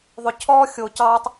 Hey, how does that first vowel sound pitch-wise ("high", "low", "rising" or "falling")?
low